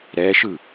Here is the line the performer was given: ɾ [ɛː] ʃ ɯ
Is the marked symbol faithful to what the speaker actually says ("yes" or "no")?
yes